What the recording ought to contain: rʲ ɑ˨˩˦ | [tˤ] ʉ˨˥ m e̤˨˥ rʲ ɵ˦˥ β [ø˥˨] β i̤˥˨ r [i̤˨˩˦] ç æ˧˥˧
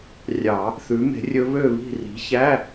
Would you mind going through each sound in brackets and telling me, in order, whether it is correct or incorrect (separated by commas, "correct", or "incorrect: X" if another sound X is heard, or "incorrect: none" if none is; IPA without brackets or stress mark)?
incorrect: θ, correct, incorrect: i̤˨˥